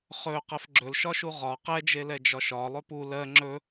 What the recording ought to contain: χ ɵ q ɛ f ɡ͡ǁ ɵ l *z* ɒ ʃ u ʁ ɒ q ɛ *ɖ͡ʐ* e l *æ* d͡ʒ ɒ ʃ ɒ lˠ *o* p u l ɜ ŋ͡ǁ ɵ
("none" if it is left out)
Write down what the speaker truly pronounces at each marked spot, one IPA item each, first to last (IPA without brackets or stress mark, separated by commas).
ʃ, d͡ʒ, ɛ, ɵ